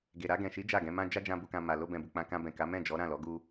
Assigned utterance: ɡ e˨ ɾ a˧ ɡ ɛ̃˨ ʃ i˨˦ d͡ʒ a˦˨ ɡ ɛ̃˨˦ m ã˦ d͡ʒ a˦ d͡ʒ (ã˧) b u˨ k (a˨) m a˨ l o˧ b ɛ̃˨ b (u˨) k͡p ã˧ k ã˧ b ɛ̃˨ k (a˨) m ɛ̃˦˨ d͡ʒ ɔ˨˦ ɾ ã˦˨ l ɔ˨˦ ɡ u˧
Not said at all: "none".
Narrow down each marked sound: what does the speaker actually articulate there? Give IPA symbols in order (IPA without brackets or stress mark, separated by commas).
ã˧, ã˨, u˨, a˨˦